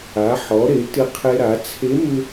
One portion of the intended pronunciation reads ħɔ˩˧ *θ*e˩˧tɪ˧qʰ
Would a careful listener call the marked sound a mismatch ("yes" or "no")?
yes